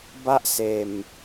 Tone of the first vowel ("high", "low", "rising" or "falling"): high